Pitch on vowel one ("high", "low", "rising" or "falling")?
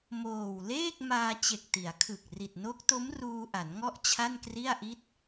low